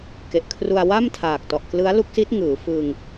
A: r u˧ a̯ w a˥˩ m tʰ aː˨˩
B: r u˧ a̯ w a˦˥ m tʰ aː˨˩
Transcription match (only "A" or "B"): A